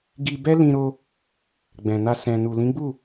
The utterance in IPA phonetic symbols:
ɡ i˧ b ɛ˦ l ĩ˧ ɾ o˧ | ɡ͡b ɛ̃˨ n a˧ s ɛ̃˨ n u˨ l ĩ˨˦ ɡ͡b u˦˨

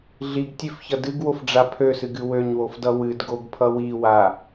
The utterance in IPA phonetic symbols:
ɮ i ɡ tʲ ø f ç ʌ d ɨ ɡ w o f ɖ͡ʐ a pʰ ø s ɨ ɡ ɨ w ø ɲ w o f d ʌ w ɨ d ɡ o ɡ pʰ ʌ w i w a

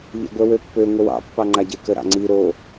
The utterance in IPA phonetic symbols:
ʎ ḛ ɡʷ ɛ w ø pː ø ŋʷ ə w ɑ̰ pː ɑ ŋ͡ǃ a ɟ e k ə ɾ ɑ̰ ŋ͡ǀ i ɾ o

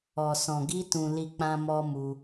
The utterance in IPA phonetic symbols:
ɔ˨ s ɔ̃˨ ɡ i˧ t ũ˧ l i˦ k͡p ã˦ m ɔ˦ m u˧

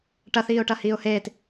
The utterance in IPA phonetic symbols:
ʈ ɐ θ iː ʊ̯ ʈ ɐ h iː ʊ̯ h eː t

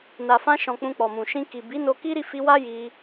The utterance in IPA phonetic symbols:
n a˨ f ã˧ ʃ ɔ̃˨ k͡p ũ˧ k͡p ɔ˨ m ũ˨ ʃ ĩ˧ k i˨ b i˨˦ n o˧ k i˦ ɾ i˦˨ f i˧ w a˦ j i˧

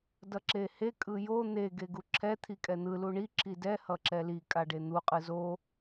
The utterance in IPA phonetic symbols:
d ʌ ǁ e h e kʼ ɯ j o n̪ e ɡ e ɡ u ǁʰ ɛ t̪ʰ i kʼ ɛ n̪ ɯ l u ɳ i ǁ i d ɛ h ʌ ǁ ɛ l i kʼ a ɖ e n̪ u qʼ ɯ z o

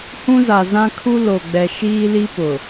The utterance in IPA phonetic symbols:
h ũ˦ z a˨ z ã˦ kʰ u˦ l o˨ ɡ͡b ɛ˨ ʃ iː˦ l i˦ p ʊ˨

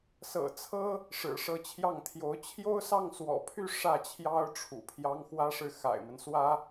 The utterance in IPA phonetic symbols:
s ɤ̰˨˩ t͡sʰ ɤ˥ | ʂ ɻ̩˨˩ ʂ ɤ˧˥ t͡ɕʰ j ɑ˥˩ ŋ t̪ʰ j o˧˥ ʊ̯ t͡ɕʰ j o˥ ʊ̯ s ɑ˥˩ ŋ s w ɔ̰˨˩ pʰ y˥˧ ʂ ä˥˩ t͡ɕʰ j ɑ˥ ʊ̯ ʈ͡ʂʰ ṵ˨˩ pʰ j ɑ˥ ŋ x w ä˥ ʂ ɻ̩˥˩ x a̰˨˩ ɪ̯ m ə˦ n s w ä˥

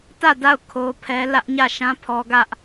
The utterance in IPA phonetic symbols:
t ä˦˨ d a˦˨ ʊ̯ kʰ o˦ pʰ ɛ˦ l ä˦ ʔ ɲ ä˦˨ ʃ ã˦ pʰ ɔ˦ ɡ ä˦ ʔ

